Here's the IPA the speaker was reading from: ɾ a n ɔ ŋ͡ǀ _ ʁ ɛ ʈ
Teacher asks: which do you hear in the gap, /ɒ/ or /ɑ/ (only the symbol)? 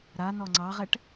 ɑ